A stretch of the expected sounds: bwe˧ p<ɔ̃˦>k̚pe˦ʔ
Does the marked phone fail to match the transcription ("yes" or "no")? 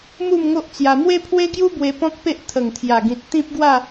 no